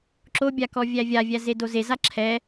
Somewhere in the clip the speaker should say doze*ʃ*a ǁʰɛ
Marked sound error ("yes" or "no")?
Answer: yes